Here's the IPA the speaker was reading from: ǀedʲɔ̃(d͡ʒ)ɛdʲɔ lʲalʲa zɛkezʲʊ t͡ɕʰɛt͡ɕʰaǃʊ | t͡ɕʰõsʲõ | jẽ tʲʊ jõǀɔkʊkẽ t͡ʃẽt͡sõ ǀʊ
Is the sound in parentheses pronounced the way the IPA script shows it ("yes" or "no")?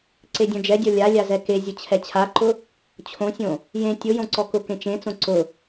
yes